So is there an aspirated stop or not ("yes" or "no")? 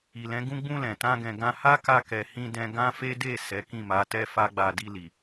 no